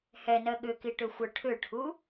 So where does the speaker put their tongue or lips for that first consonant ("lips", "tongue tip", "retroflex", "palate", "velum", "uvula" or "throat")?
throat